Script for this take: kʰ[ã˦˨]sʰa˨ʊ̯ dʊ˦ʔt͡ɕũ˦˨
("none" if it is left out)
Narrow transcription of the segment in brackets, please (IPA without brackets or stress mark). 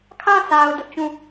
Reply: ã˦˨